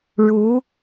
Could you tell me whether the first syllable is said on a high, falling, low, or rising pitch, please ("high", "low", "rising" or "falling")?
rising